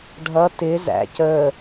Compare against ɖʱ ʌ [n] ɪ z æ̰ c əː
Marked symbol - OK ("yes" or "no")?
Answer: no